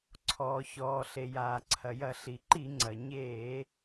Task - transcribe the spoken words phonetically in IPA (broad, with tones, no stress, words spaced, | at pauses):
ǀʰɔː˩çɔː˩ɬe˩ jaː˩ǀʰɐ˩jɐ˧˩˧ ɬi˩ǃi˧˩˧ ŋ͡ǀɐ˩ɲeː˧˩˧